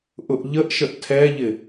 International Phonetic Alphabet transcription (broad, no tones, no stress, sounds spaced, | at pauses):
ʔ ʊ ʔ ʎ ə ʔ ʃ ə ʔ tʰ ɛ ʎ ɪ